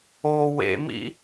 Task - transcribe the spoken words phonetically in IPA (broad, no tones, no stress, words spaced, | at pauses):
o wḛmḭ